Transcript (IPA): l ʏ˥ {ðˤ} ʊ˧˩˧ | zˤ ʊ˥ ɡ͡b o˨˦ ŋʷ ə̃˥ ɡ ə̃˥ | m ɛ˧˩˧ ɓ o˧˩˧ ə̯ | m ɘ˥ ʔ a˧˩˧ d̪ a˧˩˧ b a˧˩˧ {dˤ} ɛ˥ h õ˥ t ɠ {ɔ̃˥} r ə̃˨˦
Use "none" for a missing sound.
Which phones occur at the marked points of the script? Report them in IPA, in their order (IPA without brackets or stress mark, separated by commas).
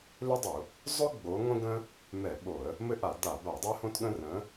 dˤ, dˤ, ə̃˥